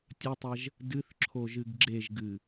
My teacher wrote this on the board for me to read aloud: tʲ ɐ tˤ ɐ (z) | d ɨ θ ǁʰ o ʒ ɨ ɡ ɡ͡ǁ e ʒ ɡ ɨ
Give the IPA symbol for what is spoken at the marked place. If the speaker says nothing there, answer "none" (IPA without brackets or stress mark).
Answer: ʒ